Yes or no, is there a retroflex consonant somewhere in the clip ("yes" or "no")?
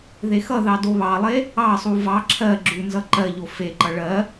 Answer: yes